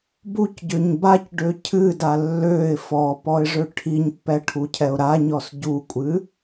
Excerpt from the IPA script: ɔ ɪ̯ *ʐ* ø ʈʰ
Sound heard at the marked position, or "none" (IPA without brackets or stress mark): ʐ